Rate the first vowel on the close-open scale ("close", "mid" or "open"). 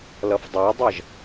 mid